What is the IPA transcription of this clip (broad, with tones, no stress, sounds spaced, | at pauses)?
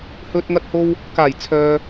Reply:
h ɵ˧ t̚ ŋ ɐ˧ t̚ h o˧ w | k aː˨˩ j t͡sʰ œː˨